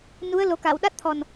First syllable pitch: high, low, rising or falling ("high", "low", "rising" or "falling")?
rising